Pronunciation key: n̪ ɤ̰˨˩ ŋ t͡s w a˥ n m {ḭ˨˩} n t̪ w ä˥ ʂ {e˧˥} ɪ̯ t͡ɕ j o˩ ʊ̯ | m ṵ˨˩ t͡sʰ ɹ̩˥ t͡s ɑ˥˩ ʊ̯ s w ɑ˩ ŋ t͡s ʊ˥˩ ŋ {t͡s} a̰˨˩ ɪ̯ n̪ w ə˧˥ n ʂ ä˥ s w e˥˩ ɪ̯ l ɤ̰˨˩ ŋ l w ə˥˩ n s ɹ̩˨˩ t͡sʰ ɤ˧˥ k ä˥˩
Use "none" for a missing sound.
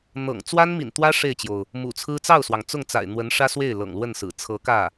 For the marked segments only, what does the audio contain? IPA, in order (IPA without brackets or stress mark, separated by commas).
ḭ˨˩, e˥˩, t͡s